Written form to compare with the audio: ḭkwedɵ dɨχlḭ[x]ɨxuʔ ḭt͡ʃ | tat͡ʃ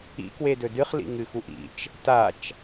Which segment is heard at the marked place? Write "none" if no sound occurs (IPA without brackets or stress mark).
ŋ